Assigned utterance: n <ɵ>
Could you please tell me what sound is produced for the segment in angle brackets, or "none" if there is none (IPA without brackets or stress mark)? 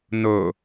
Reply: ɵ